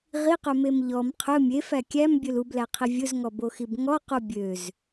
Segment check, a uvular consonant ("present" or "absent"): present